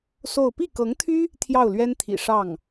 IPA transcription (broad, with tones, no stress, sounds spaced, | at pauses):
s o˥˧ ʊ̯ p i˥˩ k ɤ˧˥ ŋ t̪ʰ y˥ | t̪ʰ j ɑ˥˩ ʊ̯ l ɥ ɛ˥ n t̪ʰ ḭ˨˩ ʂ ɑ˥˩ ŋ